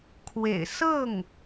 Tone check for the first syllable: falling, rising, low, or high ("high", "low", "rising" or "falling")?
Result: low